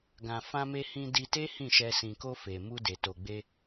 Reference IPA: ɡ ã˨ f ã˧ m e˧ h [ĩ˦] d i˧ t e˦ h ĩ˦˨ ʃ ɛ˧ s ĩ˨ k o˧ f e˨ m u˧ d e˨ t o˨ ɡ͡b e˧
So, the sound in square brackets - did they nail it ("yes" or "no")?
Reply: no